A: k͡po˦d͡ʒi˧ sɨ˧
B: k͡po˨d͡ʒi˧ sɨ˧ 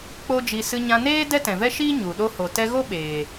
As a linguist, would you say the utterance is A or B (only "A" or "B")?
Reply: A